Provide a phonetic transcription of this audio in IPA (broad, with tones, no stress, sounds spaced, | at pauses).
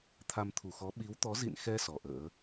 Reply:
t̪ʰ a˧ m t̪ʰ u˨˩ x ɔ˨˦ ɓ i˨˦ w t̪ ɔ˨˦ z ḭ˧˨ n x ɛ˧ s ɔ˨˩ ʔ ə̰ː˧˥